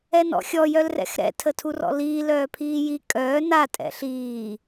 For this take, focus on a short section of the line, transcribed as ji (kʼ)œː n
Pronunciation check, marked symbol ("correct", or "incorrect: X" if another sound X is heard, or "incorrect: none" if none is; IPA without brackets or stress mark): correct